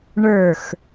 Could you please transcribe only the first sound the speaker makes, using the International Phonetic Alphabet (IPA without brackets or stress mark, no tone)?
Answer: ɳ